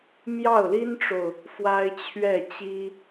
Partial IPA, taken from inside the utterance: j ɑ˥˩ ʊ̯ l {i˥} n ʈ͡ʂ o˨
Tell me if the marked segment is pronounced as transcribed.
yes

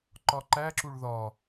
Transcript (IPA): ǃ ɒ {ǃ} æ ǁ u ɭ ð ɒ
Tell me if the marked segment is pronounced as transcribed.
yes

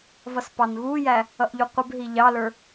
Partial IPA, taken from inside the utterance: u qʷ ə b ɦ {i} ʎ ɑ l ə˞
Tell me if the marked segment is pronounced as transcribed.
yes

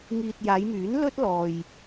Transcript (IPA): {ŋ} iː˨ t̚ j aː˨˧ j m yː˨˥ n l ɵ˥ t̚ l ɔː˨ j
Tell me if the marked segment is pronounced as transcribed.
yes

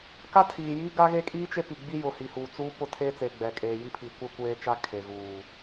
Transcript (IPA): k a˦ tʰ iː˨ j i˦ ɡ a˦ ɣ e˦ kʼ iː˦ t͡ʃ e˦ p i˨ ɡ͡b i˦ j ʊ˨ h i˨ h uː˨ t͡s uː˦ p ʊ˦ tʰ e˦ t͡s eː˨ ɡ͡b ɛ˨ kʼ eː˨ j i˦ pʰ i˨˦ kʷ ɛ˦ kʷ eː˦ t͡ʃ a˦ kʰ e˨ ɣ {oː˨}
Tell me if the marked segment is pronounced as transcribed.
no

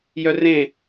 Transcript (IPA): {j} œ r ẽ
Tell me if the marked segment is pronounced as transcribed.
yes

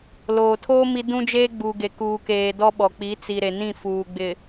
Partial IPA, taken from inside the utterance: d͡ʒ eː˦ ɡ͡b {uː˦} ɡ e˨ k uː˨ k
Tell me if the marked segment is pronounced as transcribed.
no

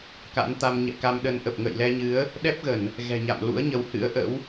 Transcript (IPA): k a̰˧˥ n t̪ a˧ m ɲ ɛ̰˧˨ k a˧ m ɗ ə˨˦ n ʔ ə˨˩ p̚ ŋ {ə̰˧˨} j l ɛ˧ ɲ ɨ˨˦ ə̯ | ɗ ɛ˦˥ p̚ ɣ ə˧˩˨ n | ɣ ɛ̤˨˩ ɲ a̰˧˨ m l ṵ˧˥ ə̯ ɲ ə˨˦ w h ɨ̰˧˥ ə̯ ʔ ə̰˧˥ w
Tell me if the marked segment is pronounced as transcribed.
yes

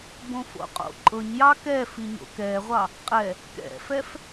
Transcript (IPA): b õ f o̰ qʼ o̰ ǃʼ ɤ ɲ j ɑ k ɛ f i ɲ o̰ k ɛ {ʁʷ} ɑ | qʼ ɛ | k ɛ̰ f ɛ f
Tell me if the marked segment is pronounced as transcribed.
yes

